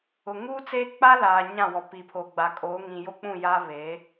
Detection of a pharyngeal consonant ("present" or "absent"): absent